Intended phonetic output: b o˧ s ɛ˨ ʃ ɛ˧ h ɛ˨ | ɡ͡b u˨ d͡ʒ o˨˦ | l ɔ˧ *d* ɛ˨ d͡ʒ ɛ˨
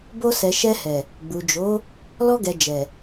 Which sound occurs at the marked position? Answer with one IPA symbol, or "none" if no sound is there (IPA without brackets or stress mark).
ɡ